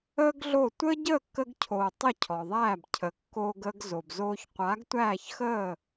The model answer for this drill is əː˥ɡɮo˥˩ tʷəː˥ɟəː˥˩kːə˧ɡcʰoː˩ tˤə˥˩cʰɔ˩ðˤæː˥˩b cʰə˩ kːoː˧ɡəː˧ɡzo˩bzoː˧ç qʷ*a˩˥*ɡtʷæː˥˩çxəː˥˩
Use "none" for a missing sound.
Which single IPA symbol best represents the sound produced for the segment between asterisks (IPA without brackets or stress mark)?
a˩˥